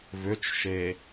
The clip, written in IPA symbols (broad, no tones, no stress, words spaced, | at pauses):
vʏt͡ʃʃe